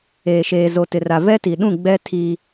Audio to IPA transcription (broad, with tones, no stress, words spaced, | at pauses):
eː˨ʃeː˨ zo˨tɪ˨ra˨ vɛ˦ti˨ɗũ˦˨ ɡ͡bɛ˦ tʰi˦